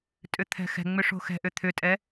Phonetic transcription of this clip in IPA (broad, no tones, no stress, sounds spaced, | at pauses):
tʼ ʏ t̪ʰ ɛ̤ x ɛ̤ ŋ͡m ʏ ʂ o̤ x ɛ̤ ʔ ʏ t̪ʰ ʏ tʼ ɛ